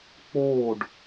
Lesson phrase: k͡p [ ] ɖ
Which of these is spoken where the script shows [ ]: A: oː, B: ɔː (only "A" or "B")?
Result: A